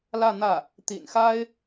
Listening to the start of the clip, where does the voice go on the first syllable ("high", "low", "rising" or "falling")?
falling